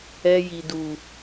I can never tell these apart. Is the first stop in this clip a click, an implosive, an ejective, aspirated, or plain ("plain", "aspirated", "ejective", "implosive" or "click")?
plain